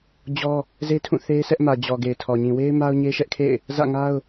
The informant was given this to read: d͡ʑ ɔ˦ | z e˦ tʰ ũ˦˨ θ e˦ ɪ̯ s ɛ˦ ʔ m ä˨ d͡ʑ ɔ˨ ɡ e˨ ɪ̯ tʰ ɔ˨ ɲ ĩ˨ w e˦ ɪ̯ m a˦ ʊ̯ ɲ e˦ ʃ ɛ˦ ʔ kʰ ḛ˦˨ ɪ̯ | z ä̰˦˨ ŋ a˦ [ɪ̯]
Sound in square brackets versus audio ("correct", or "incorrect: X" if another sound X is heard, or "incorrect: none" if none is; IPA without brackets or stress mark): incorrect: ʊ̯